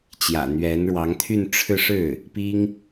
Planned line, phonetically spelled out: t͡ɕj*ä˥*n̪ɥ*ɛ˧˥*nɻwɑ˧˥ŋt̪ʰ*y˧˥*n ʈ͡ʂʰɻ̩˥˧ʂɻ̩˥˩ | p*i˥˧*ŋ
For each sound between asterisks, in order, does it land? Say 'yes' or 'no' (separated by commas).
no, yes, no, no